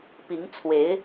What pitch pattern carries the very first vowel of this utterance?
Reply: rising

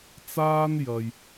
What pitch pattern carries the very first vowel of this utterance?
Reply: high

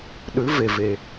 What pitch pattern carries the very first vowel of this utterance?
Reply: rising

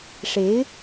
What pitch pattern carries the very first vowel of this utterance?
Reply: rising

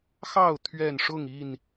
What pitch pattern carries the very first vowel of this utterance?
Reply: falling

